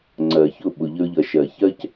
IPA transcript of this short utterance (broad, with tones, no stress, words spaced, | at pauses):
ŋ͡ǀɜ˨çʊ˦˨ ɓʊ˨ʎə˧ɹʎʌ˨ ʃɜ˨çɜ˦c